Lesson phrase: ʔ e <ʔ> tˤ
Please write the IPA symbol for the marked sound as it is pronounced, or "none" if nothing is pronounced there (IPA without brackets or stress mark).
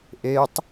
none